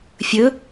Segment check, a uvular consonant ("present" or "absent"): absent